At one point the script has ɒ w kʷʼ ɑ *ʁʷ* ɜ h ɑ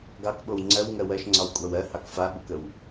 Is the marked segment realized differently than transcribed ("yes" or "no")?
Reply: yes